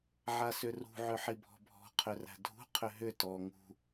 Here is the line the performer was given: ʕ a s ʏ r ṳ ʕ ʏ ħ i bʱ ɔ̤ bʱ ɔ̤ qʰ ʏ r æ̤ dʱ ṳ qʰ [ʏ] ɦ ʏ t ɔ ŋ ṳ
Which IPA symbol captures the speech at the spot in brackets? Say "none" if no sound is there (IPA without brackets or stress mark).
ʏ